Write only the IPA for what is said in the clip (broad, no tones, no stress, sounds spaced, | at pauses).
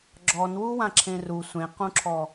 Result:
ɡ͡ǁ ɔ n w u w ã ǁʰ ẽ r u sʷ ẽ q ũ ǁʰ ɔ